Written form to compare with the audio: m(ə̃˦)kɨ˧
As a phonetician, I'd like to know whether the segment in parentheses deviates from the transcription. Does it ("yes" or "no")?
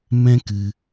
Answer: yes